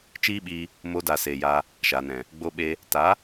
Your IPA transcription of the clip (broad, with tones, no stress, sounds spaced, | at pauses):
t͡ʃ iː˦ ɓ iː˧ | m oː˧ d a˨ s eː˨ j a˧ | ʃ a˨ n ɛ̃˨ | ɡ͡b o˧ ɓ e˧ | t a˨˦